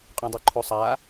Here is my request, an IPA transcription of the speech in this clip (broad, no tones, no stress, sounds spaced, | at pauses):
qʼ ũ dˤ u ǃʰ u sˤ a